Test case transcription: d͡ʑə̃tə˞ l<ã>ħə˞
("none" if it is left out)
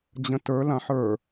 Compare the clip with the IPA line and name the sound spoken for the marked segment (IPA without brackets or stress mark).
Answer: ã